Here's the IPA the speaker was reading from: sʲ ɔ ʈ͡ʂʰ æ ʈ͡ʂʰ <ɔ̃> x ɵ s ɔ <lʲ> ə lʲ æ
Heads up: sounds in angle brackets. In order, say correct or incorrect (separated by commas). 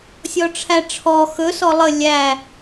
incorrect, incorrect